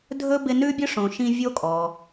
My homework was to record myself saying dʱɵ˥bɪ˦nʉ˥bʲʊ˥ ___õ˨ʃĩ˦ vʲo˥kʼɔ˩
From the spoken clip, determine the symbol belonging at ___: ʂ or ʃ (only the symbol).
ʂ